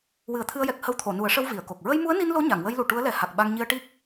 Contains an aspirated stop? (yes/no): yes